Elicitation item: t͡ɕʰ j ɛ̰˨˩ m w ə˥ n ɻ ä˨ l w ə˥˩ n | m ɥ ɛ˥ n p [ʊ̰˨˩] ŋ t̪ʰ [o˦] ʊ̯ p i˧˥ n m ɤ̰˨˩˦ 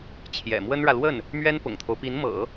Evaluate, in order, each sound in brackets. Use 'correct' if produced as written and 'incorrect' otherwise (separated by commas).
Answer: correct, correct